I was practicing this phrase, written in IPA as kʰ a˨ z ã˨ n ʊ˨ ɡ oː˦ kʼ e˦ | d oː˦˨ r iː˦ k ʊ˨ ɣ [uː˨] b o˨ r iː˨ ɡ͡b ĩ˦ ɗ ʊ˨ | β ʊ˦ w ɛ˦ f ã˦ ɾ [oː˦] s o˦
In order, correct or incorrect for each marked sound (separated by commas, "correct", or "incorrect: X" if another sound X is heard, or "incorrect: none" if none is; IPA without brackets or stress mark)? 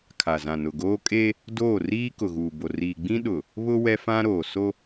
correct, incorrect: oː˨